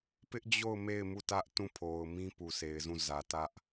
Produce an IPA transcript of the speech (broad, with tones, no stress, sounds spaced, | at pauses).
p ɪ˦ ʔ d͡ʑ o˦˨ ʊ̯ m e˦˨ ɪ̯ m u˦˨ t ä˦ ʔ t ũ˦˨ pʰ o˨ ʊ̯ m ĩ˦ p u˨ s e˨ ɪ̯ z ũ˦˨ z ä˨ t ä˦ ʔ